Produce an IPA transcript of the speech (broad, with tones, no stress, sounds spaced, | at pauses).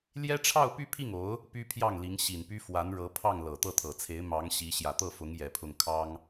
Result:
l j ɛ˥ ʈ͡ʂʰ ɑ˥˧ ʊ̯ p y˥˧ pʰ i˥˩ ŋ o˧˥ ʊ̯ | p y˥ pʰ j ɑ˥˩ ŋ l i˧˥ ŋ ɕ i˨˩ n p y˥ f w a˧˥ n ɻ ɤ˧˥ pʰ ɑ˥˩ ŋ l ɤ˨˩ t̪ ɤ˥˩ t̪ʰ ɤ˨˩ t͡sʰ e˧˥ ɪ̯ m ɑ˧˥ ŋ ɕ i˧˥ ɕ j ä˨˩ t̪ ɤ˥˩ f ʊ˧˥ ŋ j ɛ˨˩ pʰ ʊ˥˩ ŋ kʰ ɑ˥ ŋ